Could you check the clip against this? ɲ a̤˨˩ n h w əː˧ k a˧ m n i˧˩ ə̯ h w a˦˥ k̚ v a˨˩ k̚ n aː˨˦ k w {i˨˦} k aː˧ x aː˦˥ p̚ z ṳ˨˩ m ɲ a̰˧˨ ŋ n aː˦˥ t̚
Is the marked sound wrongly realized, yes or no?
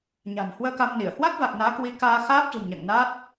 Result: no